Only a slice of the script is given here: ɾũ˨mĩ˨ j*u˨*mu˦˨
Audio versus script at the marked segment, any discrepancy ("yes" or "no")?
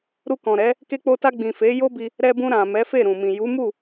yes